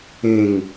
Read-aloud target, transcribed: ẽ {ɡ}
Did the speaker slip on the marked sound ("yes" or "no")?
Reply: yes